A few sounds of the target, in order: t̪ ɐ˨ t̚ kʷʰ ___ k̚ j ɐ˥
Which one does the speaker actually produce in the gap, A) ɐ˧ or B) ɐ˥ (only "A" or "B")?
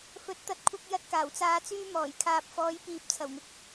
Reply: A